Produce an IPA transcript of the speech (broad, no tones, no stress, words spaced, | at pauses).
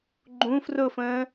ɡ͡ǃũ frʊfə̃ː